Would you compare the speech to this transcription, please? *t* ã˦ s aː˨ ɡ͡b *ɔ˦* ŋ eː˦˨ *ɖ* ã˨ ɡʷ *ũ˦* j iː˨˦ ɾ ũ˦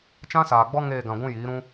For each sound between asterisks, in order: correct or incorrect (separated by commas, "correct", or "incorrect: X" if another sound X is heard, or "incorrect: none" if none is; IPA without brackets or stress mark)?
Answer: incorrect: t͡ʃ, correct, incorrect: ɡ, correct